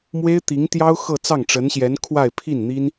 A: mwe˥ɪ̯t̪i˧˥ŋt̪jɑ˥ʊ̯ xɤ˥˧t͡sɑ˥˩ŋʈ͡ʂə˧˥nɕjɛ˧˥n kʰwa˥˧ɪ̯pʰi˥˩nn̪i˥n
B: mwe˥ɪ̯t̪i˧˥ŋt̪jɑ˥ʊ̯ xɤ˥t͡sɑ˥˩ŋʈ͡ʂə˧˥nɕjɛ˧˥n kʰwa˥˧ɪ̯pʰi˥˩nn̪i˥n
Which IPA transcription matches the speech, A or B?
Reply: A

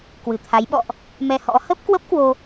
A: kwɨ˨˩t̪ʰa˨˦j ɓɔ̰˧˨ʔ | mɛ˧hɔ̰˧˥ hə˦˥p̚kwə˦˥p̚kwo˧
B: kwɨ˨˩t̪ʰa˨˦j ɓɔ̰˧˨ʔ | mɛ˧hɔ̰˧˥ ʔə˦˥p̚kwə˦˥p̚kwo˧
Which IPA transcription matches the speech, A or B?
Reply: A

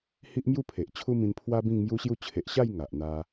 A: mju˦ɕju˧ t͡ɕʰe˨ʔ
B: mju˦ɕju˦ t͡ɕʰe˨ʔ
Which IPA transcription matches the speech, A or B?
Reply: B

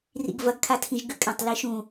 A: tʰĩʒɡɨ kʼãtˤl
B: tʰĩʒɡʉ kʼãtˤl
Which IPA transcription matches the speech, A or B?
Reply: B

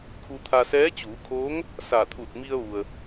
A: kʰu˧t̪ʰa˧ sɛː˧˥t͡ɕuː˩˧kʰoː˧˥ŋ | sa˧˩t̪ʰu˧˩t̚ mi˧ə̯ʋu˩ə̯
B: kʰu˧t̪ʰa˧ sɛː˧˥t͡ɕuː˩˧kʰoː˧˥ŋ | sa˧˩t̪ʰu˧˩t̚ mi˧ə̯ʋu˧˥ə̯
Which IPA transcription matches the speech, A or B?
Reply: A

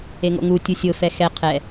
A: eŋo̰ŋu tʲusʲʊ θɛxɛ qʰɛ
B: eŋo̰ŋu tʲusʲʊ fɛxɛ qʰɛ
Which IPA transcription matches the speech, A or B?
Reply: B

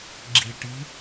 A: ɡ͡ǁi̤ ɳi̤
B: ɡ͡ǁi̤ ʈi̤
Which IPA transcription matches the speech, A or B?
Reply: B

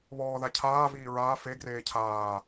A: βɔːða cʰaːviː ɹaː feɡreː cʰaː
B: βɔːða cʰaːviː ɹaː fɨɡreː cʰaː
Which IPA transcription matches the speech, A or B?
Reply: A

